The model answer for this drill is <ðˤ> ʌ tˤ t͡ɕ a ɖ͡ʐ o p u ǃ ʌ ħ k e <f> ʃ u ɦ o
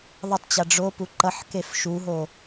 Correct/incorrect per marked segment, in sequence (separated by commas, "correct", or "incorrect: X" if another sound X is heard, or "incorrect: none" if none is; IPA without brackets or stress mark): correct, correct